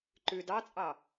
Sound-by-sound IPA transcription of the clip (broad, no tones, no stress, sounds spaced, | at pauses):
ǃ ʉ d ɑ t͡sʼ ɑ